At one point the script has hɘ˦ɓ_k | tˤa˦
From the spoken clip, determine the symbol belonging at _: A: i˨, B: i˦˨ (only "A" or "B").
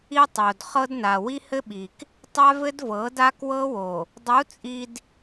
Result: A